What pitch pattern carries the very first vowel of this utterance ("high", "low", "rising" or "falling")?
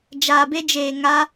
low